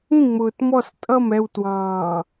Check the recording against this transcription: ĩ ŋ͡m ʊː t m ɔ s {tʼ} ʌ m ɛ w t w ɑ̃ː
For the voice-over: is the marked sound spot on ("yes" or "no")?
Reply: yes